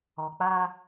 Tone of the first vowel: low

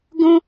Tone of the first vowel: high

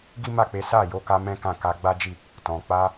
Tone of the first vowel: high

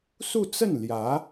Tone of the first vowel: falling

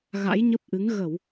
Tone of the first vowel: rising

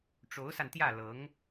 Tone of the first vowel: rising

